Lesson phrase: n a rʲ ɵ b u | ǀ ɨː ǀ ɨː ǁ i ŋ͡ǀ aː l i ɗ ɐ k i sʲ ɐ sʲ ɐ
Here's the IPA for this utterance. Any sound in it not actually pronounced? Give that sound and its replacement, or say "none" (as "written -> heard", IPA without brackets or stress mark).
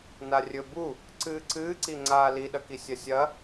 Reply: ǁ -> ǀ